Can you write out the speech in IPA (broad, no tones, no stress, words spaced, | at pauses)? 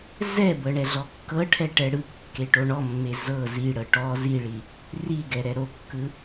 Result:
zɛbɤ ɳɛɮɔkːɤʈʰɛ ʈɛɽɯkːe ʈoɳɔmːe zɤ ziɽɤ ʈɔ ziɭi | ri ɡɛɾɛɾokːɯ